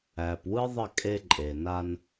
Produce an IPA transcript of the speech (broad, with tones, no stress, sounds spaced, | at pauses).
æ˨ p w ɯ˦ ðˤ ə˦˨ kʼ e˦ ǃʼ e˨ n a˦ n